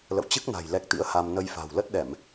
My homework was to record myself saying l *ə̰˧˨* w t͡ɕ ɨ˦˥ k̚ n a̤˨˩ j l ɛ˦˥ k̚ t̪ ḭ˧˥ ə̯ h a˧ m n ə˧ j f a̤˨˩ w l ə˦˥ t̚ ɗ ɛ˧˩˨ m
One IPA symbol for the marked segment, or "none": ə̰˧˨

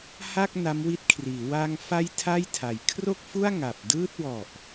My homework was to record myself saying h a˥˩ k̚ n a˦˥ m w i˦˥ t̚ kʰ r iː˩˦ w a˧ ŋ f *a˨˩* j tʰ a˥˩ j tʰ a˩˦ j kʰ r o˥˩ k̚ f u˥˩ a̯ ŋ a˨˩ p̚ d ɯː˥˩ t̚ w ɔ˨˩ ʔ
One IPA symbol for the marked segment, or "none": a˦˥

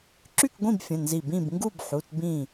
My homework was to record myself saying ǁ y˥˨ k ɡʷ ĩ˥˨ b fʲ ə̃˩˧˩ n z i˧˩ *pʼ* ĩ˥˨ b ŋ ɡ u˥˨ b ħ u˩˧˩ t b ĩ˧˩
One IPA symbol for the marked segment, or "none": b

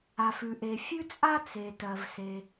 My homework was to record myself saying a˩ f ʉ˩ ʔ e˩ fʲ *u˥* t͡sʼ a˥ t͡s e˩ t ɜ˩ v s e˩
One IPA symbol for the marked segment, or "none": ʉ˥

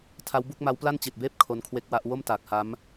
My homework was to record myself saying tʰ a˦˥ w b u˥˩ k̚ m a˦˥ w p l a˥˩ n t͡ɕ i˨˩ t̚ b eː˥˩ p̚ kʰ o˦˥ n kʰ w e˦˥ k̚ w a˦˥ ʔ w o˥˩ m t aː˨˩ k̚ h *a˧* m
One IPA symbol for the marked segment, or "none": a˦˥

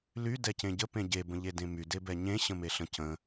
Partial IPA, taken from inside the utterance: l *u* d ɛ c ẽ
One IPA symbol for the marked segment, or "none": y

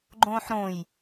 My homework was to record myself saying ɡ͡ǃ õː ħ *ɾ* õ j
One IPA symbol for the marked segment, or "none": ɾ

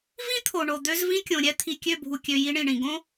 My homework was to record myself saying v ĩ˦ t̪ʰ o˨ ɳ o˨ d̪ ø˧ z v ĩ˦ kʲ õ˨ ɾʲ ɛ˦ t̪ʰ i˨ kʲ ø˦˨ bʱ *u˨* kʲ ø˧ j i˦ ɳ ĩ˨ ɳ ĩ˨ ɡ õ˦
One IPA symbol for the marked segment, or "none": u˨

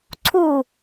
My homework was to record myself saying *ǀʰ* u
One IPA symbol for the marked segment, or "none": ǀʰ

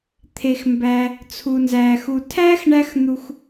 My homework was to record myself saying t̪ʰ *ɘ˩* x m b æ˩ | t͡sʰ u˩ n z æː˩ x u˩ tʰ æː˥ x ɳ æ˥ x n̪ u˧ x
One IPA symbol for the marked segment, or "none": e˩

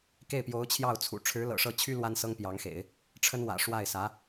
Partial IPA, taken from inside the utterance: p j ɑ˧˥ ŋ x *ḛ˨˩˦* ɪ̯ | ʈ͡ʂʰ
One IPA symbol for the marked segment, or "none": ḛ˨˩˦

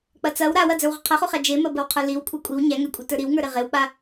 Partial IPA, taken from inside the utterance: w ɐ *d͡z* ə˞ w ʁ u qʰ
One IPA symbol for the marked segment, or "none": d͡z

